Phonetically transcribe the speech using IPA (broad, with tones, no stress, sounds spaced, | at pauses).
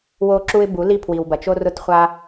w o˧ ǁ u˧ ɪ̯ b u˩˧ l i˧ pʰ w i˩ w b ɐ˩ t͡ʃ o˧ r ʊ˧ t χʷ a˧